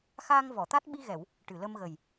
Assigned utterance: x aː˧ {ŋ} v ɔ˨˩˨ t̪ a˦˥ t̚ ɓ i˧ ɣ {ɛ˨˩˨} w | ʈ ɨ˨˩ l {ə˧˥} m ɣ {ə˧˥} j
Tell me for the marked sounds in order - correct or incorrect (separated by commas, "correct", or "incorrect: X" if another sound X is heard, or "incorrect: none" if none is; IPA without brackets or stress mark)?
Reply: correct, correct, incorrect: ə˧, incorrect: ə˨˩